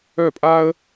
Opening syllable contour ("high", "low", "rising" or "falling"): falling